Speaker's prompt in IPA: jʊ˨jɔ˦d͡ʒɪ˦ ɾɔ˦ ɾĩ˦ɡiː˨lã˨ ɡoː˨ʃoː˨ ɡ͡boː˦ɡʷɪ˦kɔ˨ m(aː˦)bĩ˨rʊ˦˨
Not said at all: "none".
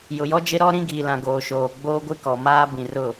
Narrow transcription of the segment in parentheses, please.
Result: aː˦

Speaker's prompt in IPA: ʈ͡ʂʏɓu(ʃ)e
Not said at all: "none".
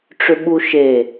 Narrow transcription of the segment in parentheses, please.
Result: ʃ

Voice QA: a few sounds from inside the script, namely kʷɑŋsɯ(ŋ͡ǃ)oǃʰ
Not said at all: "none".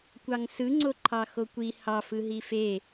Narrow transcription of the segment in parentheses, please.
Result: ŋ͡ǀ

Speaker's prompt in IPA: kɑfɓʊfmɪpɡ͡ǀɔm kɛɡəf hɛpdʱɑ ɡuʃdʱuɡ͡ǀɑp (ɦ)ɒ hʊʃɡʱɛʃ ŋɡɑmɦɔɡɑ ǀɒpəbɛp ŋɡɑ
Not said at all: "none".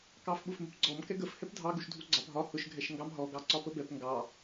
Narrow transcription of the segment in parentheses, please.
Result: ɦ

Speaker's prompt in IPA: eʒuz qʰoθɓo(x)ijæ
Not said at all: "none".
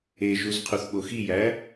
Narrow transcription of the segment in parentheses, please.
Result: x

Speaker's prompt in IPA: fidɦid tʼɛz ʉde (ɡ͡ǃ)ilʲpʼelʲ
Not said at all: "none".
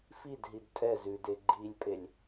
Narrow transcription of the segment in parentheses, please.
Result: ɡ͡ǃ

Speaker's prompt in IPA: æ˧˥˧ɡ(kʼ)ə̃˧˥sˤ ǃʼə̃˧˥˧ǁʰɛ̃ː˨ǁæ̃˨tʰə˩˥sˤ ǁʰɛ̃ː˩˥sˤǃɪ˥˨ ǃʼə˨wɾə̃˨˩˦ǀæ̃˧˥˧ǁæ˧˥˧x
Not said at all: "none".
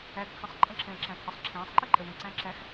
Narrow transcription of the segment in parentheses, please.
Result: kʰ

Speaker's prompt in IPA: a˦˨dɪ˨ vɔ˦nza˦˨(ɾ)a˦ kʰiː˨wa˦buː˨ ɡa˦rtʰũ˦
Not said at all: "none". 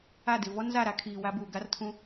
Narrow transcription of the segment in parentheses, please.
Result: ɾ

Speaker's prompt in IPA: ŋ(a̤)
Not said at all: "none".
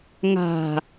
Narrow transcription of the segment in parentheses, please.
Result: a̤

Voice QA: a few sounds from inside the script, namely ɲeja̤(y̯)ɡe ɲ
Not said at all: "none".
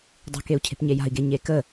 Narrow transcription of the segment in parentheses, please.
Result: i̯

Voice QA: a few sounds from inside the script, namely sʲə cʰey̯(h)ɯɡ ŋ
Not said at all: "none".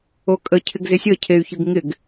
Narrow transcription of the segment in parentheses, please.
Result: ç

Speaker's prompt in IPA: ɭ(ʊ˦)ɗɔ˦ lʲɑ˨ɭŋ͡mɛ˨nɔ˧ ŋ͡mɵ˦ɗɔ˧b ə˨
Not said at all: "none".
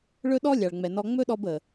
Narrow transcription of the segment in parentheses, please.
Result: ɵ˦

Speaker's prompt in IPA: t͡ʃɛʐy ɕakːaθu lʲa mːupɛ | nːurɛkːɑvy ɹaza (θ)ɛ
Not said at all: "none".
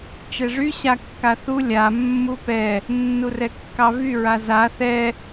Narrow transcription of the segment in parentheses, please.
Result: θ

